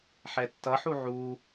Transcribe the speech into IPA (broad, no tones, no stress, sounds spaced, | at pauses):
ħ ɛ tː ʌ ħ u ʕ u